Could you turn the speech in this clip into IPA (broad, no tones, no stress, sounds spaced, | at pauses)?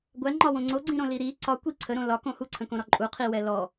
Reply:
ɡʷ æ ŋ͡ǃ ɒ w õ ŋ͡ǀ o ɡ͡ǀ ĩ ɾ õ l i ɾ i ǀ ɒ kʷ i ǀʰ ə ɾ õ l ɒ k õ h u ǀʰ ə̃ k õ ɾ ɒ ǃʼ u qʰ i w ɛ l ɔ